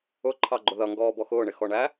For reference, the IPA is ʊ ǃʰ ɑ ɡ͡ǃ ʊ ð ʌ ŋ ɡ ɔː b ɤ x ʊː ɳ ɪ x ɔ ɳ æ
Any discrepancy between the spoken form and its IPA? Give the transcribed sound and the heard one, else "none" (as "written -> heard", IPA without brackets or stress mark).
ɤ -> ɔ